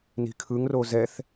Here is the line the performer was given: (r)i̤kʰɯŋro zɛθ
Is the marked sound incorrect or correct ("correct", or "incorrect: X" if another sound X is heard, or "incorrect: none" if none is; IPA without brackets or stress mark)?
incorrect: n